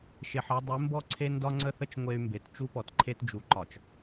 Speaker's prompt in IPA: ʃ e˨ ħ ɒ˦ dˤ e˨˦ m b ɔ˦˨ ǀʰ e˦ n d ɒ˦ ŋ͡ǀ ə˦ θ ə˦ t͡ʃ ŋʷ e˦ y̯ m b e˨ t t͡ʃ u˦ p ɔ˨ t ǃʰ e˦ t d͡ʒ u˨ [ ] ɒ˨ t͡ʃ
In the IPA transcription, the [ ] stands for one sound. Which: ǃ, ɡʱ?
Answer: ǃ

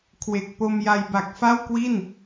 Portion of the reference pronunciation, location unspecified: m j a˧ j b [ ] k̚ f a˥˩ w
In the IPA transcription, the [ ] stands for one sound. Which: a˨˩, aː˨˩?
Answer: a˨˩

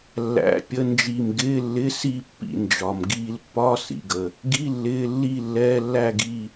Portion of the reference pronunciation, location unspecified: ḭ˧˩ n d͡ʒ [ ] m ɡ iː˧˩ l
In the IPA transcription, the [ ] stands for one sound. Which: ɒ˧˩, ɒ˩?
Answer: ɒ˩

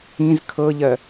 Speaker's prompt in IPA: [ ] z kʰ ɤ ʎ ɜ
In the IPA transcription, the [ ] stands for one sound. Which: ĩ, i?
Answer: ĩ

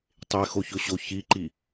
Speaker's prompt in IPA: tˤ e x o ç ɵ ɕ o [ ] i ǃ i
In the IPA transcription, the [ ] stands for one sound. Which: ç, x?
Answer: ç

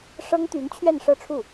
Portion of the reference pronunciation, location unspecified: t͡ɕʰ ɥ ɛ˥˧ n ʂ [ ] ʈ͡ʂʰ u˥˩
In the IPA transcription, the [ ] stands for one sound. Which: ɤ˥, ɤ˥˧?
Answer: ɤ˥˧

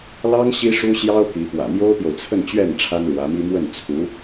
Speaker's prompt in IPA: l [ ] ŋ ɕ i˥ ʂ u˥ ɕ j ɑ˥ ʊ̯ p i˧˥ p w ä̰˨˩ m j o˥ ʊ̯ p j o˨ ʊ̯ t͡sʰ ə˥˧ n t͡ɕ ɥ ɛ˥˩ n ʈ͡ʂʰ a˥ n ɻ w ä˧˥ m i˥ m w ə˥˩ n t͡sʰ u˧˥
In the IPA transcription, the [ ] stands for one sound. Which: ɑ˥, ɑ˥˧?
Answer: ɑ˥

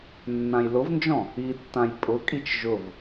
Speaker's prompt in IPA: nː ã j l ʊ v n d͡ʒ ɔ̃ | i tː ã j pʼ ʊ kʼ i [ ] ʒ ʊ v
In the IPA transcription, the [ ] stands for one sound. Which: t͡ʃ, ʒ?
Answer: t͡ʃ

